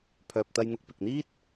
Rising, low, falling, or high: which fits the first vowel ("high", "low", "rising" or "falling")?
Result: low